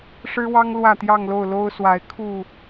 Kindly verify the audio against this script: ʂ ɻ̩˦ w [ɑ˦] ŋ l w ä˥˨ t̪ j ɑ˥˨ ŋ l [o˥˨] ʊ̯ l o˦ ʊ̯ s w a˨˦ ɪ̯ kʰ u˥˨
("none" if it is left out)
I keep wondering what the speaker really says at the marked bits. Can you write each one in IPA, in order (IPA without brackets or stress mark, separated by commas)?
ɑ˦, o˥˨